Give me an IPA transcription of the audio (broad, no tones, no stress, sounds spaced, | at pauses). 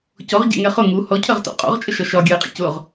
c ɔ ʁ ɟ ɛ̰ ŋ ɛ χ ʊ ŋ u h ɔ cʰ ɜ ʁ t ɔ̰ qʼ ɔ̰ ʁ t͡ʃʼ ə ʃ ɒ ʃ ɒ ɡʲ ɜ ɪ̯ qʼ ə̰ c ʊ ʁ